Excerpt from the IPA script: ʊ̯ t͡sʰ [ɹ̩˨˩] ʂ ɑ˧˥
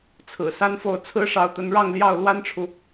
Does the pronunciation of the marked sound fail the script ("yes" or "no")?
yes